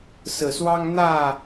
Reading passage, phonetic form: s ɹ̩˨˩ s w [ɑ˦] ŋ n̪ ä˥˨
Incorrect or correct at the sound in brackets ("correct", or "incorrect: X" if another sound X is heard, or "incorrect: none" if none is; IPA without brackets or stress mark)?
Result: correct